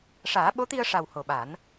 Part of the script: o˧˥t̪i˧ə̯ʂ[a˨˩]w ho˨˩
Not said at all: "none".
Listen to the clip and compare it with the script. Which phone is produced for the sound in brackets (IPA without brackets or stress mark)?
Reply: a˨˩